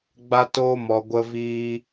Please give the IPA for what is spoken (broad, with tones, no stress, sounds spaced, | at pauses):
ɡ͡b a˦ t oː˦ m ɔ˧ ɡʷ ə˦ v iː˦